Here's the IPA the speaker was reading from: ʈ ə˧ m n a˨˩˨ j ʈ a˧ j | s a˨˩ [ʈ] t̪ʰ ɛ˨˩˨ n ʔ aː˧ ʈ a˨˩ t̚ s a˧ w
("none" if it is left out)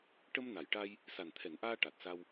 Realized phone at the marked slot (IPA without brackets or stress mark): n